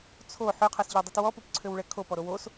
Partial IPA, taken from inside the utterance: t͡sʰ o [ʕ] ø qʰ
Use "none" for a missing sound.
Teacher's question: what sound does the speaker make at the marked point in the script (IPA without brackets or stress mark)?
ħ